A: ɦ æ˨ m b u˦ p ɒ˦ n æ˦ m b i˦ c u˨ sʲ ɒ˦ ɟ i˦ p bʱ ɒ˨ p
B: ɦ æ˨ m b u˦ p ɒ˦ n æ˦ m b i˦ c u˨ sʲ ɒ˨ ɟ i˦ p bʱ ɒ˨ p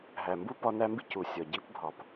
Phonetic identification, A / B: B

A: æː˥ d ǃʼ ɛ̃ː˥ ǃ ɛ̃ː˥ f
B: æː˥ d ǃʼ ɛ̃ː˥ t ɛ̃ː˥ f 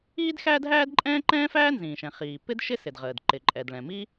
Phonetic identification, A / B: A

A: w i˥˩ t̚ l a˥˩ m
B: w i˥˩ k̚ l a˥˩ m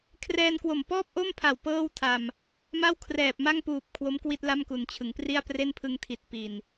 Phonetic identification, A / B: A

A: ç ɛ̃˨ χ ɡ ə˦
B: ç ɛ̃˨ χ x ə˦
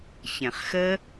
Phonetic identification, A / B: B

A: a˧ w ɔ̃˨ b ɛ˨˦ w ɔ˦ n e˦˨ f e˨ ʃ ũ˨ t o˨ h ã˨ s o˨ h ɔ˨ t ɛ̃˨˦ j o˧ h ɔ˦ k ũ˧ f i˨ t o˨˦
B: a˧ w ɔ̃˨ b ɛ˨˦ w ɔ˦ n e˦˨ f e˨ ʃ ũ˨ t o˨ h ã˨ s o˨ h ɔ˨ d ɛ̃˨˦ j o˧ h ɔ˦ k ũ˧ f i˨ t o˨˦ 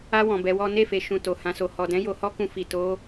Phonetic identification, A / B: B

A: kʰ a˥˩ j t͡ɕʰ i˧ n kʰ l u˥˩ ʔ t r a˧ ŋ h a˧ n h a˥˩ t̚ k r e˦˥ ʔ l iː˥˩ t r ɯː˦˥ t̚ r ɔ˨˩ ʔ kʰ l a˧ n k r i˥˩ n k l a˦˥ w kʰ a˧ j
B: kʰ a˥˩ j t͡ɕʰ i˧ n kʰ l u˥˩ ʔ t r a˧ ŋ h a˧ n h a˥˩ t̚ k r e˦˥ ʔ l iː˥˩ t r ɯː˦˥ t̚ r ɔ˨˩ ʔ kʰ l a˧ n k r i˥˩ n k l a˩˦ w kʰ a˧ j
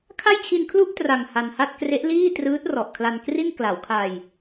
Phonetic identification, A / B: B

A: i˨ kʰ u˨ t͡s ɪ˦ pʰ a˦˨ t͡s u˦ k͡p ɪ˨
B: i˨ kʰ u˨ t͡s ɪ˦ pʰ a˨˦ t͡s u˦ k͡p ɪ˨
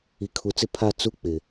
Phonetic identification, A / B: A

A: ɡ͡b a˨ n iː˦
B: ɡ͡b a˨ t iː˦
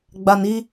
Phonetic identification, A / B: A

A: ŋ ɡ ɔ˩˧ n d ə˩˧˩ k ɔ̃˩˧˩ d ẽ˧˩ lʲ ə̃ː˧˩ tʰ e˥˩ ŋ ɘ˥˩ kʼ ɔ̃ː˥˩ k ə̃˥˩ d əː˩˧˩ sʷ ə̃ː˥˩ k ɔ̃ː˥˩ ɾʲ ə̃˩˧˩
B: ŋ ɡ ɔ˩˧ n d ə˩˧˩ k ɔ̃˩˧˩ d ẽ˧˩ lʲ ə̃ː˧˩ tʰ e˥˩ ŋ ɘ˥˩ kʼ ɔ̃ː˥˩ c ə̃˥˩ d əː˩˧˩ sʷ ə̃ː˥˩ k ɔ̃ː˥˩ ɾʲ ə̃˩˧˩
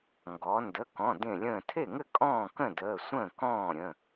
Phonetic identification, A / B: A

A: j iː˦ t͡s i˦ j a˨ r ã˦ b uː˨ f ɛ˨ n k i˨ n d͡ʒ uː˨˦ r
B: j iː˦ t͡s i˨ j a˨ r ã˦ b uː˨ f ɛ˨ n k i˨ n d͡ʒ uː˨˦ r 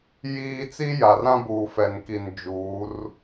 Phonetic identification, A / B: A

